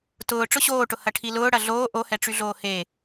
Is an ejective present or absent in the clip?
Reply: absent